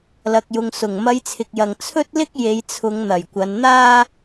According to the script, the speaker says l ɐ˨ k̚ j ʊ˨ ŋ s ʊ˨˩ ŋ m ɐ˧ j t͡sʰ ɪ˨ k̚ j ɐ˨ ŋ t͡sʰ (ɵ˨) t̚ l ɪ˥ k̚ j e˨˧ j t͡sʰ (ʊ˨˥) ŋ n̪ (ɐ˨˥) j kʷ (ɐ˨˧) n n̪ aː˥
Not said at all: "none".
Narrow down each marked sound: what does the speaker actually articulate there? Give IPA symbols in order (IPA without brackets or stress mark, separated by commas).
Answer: ɵ˥, ʊ˨˧, ɐ˨˩, ɐ˨˧